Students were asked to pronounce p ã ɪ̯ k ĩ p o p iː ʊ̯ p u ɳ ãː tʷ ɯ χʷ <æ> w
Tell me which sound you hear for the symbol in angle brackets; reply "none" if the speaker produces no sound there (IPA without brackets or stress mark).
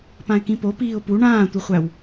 æ